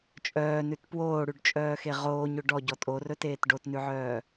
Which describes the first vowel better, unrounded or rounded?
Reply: rounded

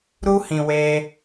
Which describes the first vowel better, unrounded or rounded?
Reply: rounded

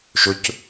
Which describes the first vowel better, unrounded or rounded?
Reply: rounded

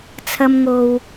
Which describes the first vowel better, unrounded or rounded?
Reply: unrounded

